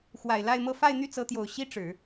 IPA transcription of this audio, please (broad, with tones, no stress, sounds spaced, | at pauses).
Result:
x w a˨˩ ɪ̯ l a˥˧ ɪ̯ m ɤ˥˧ f a˥˧ ɪ̯ n̪ y˥˩ t͡s ɤ˧˥ t̪ j o˨˩ ʊ̯ ɕ i˥ ʈ͡ʂ ɻ̩˨˩˦